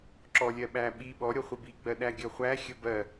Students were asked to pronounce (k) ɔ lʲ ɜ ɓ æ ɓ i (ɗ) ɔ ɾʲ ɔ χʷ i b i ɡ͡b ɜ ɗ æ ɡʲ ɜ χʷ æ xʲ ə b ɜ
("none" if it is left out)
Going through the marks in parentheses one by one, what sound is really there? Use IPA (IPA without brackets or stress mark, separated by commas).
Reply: ǁ, ɓ